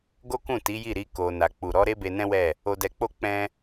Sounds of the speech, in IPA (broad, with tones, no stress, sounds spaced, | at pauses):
ɡ o˦ k ũ˦˨ t i˨˦ j i˦˨ ɾ i˧ k o˨ n a˨ k͡p u˨ ɾ ɔ˨˦ ɾ e˦ b e˧ n ɛ̃˦ w ɛ˦˨ | o˧ d ɛ˧ k͡p o˦ k͡p ɛ̃˦